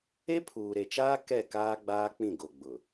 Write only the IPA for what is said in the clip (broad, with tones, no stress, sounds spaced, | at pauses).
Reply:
e˦ pʰ uː˨ ɾ e˨ t͡ʃ aː˦ k ɛ˦˨ k aː˦ ɡ͡b aː˦ k͡p ĩ˦˨ ɡ o˨ ɡ͡b ʊ˨